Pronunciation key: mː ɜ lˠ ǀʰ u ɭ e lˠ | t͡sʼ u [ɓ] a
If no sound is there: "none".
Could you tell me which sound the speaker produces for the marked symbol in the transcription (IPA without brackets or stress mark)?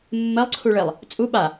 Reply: ɓ